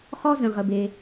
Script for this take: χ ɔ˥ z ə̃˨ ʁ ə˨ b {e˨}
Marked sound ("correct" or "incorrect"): correct